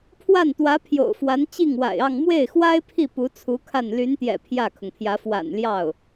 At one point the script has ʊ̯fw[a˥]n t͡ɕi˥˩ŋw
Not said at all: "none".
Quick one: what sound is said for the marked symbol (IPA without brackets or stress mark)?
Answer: a˧˥